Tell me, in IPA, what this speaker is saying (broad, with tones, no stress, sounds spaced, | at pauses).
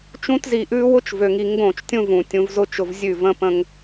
t͡ʃ ũ˧ t z i˨ ʔ ʉ˧ w ʊ˦ t͡ʃ v ø˨ ŋ i˨ ŋ ɡ õ˦˨ t͡ʃ tʲ ũ˦ v ũ˨ tʲ ũ˧ v z ʊ˦ t͡ʃ ʊ˧ v zʲ ʉ˦˨ v ə̃˦ p ə̃˦ ŋ